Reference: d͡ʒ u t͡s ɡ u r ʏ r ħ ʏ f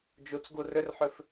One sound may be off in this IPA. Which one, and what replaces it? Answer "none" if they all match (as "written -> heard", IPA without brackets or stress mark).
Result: none